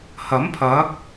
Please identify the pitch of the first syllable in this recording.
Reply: rising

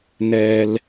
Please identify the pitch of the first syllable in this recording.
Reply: high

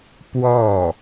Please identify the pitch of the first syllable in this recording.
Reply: falling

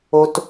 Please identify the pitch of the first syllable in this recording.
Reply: high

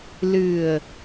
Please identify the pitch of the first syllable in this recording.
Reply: low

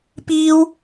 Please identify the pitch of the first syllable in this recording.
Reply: high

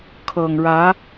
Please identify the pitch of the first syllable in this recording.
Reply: low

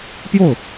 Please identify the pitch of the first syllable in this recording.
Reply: falling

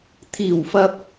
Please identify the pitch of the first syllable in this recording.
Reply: low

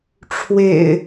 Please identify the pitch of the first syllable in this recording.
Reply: low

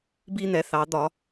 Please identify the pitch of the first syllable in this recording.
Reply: high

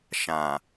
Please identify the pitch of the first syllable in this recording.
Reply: low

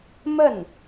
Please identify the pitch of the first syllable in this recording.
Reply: falling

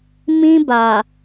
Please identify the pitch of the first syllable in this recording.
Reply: high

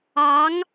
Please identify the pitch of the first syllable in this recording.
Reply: rising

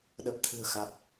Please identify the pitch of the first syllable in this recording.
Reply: low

